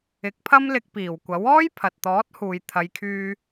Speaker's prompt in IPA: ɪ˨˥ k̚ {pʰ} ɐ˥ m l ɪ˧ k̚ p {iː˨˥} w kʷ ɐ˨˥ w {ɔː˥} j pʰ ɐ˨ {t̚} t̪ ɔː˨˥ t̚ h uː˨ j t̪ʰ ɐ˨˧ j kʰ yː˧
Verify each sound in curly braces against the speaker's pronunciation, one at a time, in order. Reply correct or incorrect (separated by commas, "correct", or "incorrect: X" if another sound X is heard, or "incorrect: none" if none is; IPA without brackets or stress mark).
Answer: correct, incorrect: iː˨˩, correct, correct